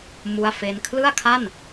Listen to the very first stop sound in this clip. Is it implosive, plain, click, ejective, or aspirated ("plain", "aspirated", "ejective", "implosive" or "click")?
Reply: aspirated